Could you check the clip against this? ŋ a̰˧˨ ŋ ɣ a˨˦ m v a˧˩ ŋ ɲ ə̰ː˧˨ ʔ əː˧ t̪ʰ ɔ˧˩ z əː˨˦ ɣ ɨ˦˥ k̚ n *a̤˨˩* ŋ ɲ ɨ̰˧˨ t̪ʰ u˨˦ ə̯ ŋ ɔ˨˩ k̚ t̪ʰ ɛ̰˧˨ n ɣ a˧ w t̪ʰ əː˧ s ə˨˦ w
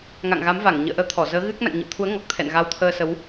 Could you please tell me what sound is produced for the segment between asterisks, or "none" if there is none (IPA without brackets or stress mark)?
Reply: a̰˧˨